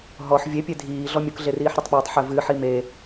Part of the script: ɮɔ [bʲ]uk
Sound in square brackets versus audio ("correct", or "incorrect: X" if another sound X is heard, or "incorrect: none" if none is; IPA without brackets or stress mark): incorrect: mʲ